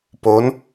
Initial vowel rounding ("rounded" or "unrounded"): rounded